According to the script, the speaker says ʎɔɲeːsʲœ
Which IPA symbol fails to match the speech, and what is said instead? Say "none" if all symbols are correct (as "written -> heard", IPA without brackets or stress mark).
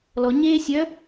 ʎ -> l